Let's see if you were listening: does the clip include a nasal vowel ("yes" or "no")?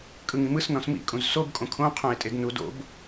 yes